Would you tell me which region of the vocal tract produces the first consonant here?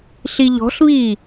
tongue tip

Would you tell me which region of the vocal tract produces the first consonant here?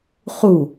uvula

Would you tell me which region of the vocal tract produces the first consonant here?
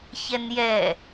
palate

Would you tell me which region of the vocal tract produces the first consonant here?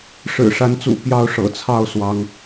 retroflex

